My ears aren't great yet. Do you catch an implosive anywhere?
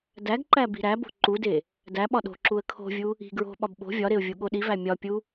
yes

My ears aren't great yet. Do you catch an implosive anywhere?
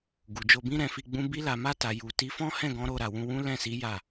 no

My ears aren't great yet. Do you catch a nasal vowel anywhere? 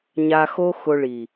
no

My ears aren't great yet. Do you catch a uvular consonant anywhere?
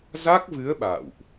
no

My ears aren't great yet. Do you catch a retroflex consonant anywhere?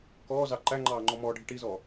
yes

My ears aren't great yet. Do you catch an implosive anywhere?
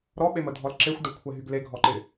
yes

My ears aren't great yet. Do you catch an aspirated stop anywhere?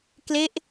no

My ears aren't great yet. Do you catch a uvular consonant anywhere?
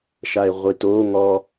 yes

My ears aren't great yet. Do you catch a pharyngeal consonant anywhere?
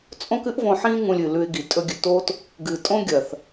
yes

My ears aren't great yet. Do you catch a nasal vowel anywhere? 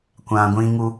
yes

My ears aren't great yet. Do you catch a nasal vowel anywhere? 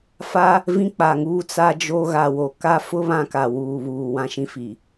yes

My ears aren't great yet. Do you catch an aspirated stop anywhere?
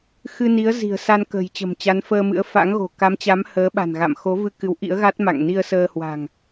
no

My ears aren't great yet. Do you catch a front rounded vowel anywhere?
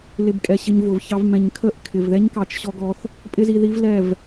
no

